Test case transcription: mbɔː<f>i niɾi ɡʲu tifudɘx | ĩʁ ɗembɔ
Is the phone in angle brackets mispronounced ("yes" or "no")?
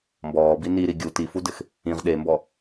yes